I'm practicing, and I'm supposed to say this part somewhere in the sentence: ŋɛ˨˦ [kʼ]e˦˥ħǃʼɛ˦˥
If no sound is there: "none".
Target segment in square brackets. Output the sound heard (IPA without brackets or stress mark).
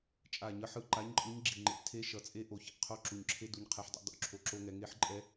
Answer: ŋ